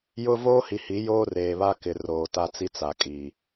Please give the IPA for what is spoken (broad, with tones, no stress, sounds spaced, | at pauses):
j ʊ˦ v oː˦ h i˨ h i˨˦ j oː˦ r eː˨ β a˦ k ɪ˨ r oː˨ t a˦ t͡s i˦ t͡s a˨ kʼ i˨